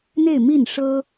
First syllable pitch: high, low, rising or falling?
falling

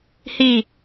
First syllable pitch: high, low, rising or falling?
falling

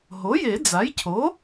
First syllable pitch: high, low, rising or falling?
rising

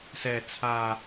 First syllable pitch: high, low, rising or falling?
low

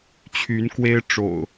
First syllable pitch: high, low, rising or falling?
rising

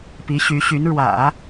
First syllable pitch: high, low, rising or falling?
rising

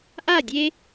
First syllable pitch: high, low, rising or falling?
falling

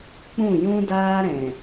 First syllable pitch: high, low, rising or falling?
falling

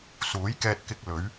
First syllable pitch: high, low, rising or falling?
rising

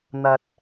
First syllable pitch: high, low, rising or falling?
low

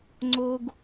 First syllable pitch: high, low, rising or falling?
high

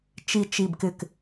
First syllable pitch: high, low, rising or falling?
low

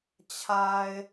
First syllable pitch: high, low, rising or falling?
low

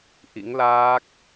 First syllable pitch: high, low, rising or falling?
rising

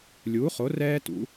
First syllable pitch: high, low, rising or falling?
rising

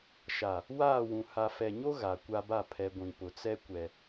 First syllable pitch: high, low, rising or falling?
low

